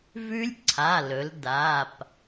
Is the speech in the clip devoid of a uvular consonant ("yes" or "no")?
yes